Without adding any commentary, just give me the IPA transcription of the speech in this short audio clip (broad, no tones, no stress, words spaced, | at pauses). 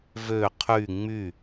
vø qʰy ŋ͡my